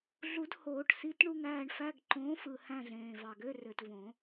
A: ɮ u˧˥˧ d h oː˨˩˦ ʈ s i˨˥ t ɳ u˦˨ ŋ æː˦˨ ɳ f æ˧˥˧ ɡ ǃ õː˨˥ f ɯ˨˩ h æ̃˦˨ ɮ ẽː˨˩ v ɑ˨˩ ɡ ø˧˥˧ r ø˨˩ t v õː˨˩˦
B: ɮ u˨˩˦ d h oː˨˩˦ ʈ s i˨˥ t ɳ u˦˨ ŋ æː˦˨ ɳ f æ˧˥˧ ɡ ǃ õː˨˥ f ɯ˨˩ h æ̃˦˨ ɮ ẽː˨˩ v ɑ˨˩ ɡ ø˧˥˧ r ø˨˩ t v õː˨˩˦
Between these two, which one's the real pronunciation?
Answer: B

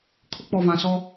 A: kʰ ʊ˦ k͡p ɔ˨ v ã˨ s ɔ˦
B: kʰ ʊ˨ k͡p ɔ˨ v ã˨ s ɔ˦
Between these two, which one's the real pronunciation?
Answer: A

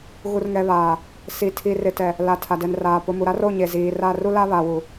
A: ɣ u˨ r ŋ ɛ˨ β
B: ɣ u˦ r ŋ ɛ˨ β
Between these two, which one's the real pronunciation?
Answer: A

